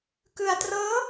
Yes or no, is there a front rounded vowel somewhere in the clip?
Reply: no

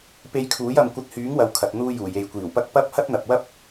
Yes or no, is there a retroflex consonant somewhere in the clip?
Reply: no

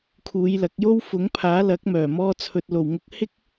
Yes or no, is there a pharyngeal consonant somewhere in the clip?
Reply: no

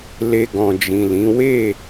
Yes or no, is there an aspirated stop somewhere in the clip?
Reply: no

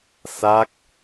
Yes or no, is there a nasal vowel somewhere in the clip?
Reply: no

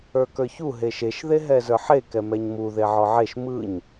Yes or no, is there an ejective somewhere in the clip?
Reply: no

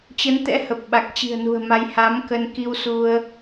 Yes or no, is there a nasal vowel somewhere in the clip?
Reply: no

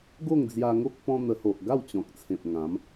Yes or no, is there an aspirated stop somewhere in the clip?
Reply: yes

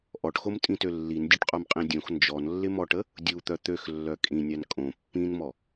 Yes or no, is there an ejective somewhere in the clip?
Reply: yes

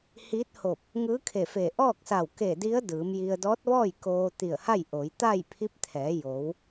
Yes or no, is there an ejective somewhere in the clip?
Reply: no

